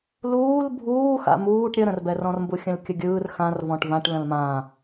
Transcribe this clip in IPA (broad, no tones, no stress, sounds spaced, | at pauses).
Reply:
l uː l bʱ uː x a̰ m uː ʈ ɾʲ ə ɾ ə̃ r b ɛ r ɔ̃ r m b u xʲ ə̃ l kʲ ə ɡʲ ɯː r x ã r v ɔ̃ ʈ v ã ʈ l ə̃ l m ã